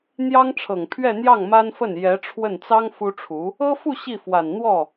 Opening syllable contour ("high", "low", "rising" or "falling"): high